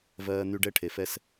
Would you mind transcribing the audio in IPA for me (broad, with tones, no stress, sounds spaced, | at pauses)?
v ɜː˦ n̪ y˦ ɖ ɛ˦ ʈʰ e˨ f ɛ˦ s